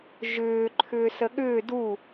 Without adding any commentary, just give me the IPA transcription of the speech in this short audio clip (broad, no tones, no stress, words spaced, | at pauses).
ʒʏː ǃʰʏːsəɠʏː du